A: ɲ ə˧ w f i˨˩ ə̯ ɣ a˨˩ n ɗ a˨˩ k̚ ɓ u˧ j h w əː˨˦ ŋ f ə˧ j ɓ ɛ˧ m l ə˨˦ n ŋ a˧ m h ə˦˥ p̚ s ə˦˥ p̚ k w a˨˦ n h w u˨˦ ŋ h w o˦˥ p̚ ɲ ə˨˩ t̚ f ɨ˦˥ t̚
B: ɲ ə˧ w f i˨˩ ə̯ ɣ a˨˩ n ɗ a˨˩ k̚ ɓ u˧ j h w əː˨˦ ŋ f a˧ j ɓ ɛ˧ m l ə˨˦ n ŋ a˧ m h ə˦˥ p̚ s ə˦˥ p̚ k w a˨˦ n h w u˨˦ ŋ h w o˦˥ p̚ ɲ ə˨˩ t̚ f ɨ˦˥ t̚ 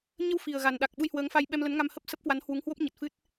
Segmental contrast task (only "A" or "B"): B